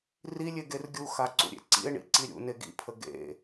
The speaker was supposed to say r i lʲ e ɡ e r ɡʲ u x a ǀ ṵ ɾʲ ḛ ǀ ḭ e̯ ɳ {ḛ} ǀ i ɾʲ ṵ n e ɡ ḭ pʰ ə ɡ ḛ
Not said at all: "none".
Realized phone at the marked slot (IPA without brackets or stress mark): ḭ